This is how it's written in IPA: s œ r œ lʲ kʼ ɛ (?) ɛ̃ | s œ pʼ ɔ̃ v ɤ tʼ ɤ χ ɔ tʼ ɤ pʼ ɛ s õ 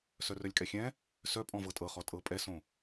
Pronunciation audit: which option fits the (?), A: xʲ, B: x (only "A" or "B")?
A